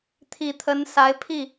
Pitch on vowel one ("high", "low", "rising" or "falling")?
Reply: low